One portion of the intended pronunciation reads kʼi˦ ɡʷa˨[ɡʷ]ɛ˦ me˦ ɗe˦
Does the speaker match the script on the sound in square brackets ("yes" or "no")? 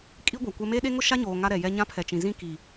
no